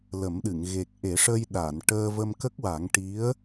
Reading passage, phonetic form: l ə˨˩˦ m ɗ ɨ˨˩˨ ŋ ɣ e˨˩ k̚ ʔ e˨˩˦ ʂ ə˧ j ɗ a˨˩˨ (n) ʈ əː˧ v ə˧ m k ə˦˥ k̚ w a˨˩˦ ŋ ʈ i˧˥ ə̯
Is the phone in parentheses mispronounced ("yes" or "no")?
no